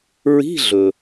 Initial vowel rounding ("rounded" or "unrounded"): unrounded